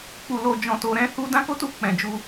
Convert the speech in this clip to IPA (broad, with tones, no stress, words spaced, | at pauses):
k͡pu˨lo˨ d͡ʒɔ̃˨to˨ɾɛ̃˧ hu˧ dã˦ko˦tu˧ k͡pɛ̃˨d͡ʒu˧